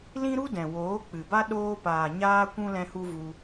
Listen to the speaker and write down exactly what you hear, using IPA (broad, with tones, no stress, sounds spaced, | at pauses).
l ĩ˦ ɾ u˦ d ɛ̃˨ w oː˨˦ k͡p ɨ˨ b a˦ ɗ oː˧ p aː˨ ɲ aː˦ kʷ ũ˦ l ɛ̃˦ h u˦ v u˧